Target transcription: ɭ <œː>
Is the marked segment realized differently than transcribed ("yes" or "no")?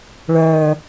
no